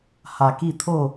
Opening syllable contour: low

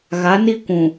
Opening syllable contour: rising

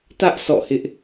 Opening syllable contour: high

